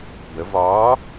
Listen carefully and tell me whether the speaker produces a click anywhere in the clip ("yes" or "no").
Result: no